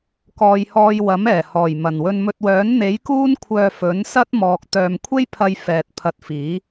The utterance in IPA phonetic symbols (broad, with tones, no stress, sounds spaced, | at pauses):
k ɔː˨ j h ɔː˧ j w ɐ˨˥ m ɛː˨˩ h ɔː˨˩ j m ɐ˨˩ n w ɵ˨ n m ɵ˨ t̚ w œː˨˥ n n̪ e˨˥ j k uː˥ n kʷʰ œː˧ f ɵ˨˥ n s ɐ˥ t̚ m ɔː˨ k̚ t̪ œː˨ m kʷʰ e˥ j pʰ ɐ˧ j f ɛː˨ t̚ pʰ ɐ˧ t̚ f iː˨˥